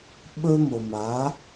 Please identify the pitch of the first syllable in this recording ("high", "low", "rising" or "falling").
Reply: high